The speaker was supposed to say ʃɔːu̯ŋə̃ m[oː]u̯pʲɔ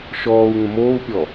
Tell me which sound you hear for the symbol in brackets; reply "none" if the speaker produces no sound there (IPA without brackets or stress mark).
oː